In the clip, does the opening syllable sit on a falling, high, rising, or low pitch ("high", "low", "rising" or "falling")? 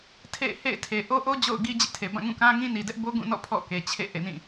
falling